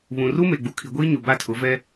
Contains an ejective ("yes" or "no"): no